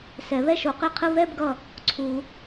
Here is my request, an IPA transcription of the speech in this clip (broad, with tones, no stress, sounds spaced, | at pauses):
s ɛ˨˩˦ β ɛ˥˩ ʃ o˨˩˦ q i˧˩ qʰ ɯ˥˧ β ɛ˥˧ b ɡ ʌ˧˩ | ǀʰ u˨˩˦